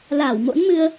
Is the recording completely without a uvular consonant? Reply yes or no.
yes